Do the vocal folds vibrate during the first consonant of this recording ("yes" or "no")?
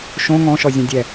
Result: no